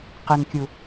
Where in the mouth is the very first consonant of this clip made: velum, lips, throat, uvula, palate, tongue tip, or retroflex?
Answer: uvula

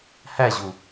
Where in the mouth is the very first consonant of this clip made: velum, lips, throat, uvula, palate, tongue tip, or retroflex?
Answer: throat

